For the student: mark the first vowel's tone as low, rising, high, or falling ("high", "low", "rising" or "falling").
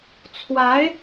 rising